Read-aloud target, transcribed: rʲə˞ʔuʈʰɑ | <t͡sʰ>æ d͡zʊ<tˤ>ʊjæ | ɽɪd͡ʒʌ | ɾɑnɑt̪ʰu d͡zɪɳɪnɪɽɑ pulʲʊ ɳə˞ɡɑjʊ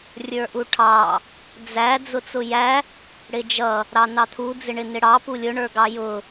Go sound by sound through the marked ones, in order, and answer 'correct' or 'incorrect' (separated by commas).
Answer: incorrect, incorrect